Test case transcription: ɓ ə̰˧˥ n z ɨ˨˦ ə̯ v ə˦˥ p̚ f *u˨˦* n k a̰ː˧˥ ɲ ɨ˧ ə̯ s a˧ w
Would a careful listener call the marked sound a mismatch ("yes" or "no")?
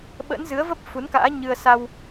no